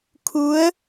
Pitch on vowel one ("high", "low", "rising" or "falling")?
rising